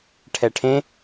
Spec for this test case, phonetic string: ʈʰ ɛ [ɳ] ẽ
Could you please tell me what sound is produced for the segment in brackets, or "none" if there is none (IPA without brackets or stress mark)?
ʈʰ